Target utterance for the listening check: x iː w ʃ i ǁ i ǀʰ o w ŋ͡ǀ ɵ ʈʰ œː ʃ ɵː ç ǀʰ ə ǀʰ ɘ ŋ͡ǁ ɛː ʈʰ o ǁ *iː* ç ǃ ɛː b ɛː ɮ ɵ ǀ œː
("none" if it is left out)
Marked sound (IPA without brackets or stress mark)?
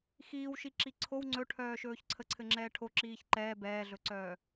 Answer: iː